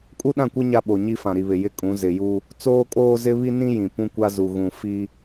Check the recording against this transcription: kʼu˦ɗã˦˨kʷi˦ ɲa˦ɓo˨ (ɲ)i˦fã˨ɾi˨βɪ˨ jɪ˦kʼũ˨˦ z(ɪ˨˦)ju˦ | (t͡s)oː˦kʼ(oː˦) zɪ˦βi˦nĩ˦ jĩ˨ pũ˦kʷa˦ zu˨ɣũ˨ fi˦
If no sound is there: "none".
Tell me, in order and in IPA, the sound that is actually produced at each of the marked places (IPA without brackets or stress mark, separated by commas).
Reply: ɲ, ɪ˨, t͡s, oː˦